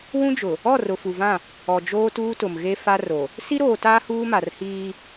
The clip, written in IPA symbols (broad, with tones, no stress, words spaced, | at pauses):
wũ˦d͡ʒʊ˨ | ɔ˦˨rʊ˨fu˨vã˦˨ | ɔ˨d͡ʒoː˦tuː˦tʊ˨m ɣe˦fa˦ro˨ | si˦ɾoː˨taː˦ huː˦ma˨r hiː˦